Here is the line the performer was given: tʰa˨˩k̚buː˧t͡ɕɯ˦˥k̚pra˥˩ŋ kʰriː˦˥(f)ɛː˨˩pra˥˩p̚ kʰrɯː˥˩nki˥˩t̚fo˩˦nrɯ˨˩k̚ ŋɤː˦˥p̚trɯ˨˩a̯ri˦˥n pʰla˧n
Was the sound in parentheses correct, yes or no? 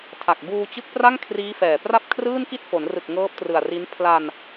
yes